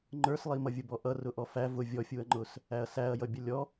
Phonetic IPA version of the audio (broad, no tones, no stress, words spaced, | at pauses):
ŋ͡ǃə˞slˠi mʌvʲʊbɔʔʌ rʊʔɔfæ vʊ vʲɔfʲuɐ̯ŋ͡ǃʊs | æɐ̯sæɐ̯jʌ bʲʌlʲɔ